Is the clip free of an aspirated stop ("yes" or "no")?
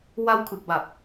no